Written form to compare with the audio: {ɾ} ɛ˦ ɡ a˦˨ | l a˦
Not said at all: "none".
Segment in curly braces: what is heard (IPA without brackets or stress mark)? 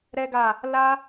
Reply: ɾ